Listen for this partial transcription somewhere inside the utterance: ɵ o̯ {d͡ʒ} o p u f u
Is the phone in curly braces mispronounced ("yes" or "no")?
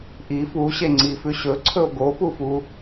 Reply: yes